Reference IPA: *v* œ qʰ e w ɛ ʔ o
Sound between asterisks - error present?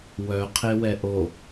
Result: yes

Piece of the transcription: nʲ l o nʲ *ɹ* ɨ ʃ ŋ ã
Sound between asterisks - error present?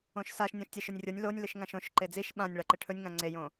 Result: yes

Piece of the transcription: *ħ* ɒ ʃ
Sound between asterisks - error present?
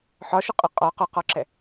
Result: no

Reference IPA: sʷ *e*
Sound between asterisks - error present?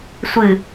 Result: yes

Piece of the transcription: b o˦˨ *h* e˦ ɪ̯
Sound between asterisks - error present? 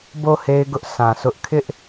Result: no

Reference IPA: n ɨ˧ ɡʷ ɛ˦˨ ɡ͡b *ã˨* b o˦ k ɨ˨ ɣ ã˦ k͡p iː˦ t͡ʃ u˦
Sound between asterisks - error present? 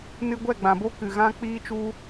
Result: no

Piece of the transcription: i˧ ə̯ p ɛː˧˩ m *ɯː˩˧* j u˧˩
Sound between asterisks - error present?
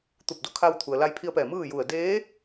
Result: yes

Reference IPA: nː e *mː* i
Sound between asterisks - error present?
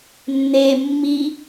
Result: no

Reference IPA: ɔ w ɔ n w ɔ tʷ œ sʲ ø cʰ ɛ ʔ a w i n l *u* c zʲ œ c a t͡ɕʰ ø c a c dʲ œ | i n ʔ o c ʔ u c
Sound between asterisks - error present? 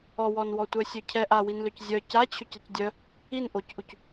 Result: yes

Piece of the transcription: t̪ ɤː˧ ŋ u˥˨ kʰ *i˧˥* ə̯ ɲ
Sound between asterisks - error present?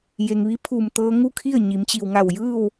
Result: yes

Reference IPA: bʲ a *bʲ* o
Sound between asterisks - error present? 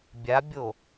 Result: no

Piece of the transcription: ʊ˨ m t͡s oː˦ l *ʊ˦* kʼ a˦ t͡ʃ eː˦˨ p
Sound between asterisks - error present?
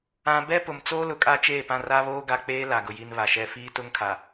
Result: yes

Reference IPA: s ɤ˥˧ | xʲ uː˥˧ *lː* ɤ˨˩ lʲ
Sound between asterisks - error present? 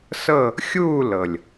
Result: yes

